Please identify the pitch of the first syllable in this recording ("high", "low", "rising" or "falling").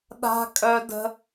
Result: high